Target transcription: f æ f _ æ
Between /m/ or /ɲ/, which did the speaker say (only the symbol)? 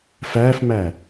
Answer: m